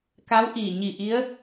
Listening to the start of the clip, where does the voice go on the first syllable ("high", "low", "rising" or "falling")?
rising